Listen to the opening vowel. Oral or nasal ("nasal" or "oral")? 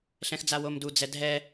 nasal